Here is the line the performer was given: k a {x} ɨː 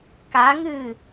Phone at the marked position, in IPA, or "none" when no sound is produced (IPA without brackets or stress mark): ŋ